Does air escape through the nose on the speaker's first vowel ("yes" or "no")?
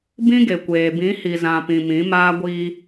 yes